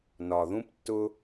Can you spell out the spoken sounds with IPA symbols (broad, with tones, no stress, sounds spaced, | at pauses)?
n ɒ˨ ð ũ˦ p tː ʊ˦